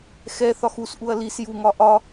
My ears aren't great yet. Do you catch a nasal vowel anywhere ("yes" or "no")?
no